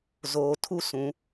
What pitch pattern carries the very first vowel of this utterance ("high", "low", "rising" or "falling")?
low